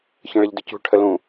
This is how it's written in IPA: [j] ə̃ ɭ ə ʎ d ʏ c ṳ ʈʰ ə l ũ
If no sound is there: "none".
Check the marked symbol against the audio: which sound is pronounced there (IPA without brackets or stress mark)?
ç